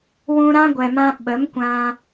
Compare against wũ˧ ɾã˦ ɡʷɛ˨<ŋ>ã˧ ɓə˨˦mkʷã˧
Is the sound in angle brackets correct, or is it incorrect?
incorrect